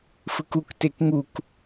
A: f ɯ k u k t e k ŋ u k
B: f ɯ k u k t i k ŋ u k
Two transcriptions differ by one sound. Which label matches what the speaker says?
A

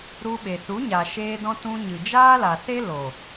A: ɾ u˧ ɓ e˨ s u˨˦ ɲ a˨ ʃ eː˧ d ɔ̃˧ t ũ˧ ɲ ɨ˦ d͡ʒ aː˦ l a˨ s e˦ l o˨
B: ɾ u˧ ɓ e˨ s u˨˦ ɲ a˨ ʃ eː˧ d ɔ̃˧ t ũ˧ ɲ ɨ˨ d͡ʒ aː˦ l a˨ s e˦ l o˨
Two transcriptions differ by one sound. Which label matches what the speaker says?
B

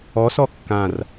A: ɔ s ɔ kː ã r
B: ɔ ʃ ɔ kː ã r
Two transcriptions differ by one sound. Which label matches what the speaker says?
A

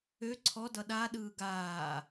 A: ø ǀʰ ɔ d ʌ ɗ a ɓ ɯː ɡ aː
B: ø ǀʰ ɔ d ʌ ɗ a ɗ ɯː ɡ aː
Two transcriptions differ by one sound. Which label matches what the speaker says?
B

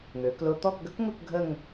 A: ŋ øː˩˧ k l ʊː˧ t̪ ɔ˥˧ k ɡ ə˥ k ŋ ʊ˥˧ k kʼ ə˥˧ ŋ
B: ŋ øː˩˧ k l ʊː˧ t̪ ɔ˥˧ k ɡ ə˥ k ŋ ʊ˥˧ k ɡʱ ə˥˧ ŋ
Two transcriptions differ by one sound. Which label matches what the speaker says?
B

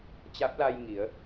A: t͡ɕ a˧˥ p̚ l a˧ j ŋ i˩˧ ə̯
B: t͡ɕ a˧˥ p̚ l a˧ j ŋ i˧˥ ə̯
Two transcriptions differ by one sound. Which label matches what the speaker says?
A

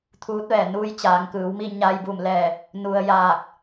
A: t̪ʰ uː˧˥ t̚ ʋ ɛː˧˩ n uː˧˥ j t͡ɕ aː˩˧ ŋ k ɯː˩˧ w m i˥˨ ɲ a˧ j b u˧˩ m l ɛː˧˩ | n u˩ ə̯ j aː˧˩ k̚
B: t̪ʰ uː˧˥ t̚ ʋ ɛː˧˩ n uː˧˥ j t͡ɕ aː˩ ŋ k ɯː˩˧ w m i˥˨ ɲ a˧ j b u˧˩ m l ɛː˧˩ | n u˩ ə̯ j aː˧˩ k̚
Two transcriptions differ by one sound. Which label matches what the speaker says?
A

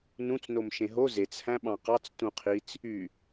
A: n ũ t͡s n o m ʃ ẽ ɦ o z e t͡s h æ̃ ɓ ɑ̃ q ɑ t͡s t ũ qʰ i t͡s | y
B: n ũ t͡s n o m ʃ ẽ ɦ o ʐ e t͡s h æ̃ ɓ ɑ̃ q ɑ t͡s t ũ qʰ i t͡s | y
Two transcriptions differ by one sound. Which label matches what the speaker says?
A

